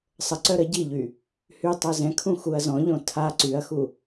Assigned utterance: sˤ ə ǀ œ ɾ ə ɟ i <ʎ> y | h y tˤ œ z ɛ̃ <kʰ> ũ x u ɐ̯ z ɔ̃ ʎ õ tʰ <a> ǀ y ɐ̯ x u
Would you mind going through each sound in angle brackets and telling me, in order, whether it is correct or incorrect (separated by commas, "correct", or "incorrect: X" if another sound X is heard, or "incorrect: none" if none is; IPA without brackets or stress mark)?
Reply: correct, correct, correct